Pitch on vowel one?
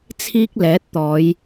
high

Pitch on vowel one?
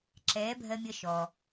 rising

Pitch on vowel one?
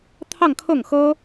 falling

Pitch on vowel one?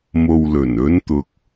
low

